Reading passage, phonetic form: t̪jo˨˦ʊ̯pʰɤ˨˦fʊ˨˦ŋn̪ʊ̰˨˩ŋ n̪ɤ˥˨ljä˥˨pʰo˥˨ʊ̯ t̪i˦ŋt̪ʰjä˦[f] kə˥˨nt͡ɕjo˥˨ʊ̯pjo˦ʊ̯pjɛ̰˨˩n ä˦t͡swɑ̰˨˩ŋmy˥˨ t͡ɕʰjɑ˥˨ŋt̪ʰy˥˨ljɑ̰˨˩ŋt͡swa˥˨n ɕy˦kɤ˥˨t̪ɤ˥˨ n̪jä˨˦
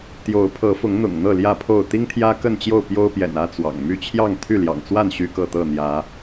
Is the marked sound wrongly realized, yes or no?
yes